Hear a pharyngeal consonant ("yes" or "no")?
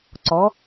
no